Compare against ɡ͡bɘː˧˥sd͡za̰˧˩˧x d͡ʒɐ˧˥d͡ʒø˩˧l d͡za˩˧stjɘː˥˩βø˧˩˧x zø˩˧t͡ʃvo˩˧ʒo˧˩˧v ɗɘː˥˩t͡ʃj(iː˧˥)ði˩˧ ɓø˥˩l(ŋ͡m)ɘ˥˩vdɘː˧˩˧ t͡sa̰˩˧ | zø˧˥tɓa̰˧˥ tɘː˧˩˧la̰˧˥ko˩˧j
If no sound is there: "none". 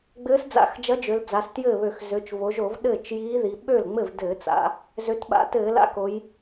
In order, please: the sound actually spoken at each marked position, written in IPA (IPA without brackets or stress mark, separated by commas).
iː˧˥, ŋ͡m